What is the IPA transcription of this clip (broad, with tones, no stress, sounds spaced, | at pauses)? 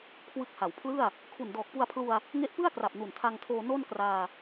kʰ w ɯ˦˥ k̚ h a˩˦ w pʰ l ɯ˥˩ a̯ | kʰ u˨˩ n d ɔː˨˩ k̚ p u˧ a̯ pʰ l u˧ a̯ | ŋ e˦˥ ʔ p ɯ˥˩ a̯ k r a˨˩ p̚ n u˨˩ n tʰ a˧ ŋ tʰ oː˧ n o˥˩ n k r aː˧